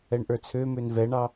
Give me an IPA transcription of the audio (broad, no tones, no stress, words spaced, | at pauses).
ɛɳʔə˞t͡sʰømøn vɛɳɑ